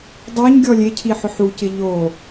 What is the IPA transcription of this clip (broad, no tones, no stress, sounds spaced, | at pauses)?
dˤ o ɲ ɡʲ ɔ lʲ e cʰ i ħ ʊ ħ u c ɪ ʎ o